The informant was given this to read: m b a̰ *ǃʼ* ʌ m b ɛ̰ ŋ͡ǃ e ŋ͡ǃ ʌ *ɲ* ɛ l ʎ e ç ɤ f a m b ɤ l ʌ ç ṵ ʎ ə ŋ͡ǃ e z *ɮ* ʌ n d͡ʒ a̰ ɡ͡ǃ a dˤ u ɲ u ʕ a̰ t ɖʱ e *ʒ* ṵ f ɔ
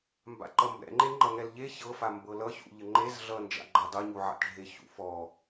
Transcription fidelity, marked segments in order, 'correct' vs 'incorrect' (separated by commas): incorrect, incorrect, correct, incorrect